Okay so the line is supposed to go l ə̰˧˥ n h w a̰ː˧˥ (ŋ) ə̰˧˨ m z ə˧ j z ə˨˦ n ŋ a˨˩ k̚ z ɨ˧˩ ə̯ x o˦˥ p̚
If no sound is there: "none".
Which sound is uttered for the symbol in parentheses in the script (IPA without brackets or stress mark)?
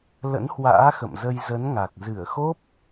x